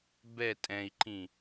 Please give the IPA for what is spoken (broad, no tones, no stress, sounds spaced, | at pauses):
b ɛ tʼ ɛ̃ i̯ ǃ ĩ